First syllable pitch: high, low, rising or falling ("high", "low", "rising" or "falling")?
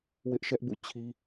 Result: high